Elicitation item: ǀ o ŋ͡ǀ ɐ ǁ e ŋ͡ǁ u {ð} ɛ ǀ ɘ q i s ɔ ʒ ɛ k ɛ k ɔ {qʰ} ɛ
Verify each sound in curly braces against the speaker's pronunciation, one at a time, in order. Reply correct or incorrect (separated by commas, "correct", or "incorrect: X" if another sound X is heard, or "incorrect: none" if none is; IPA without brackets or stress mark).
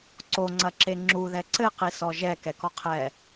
correct, correct